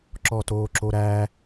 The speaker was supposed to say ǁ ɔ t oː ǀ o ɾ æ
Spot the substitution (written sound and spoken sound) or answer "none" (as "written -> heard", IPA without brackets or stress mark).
ǀ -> ǁ